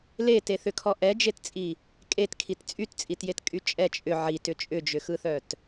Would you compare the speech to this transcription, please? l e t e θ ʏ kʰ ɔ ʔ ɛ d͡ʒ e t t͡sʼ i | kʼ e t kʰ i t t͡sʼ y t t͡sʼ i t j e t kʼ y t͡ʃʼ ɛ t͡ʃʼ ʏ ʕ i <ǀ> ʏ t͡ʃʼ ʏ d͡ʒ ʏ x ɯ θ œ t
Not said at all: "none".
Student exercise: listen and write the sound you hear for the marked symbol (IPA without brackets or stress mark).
t